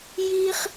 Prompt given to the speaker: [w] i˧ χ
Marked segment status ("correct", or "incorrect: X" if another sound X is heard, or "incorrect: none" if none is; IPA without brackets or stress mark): incorrect: j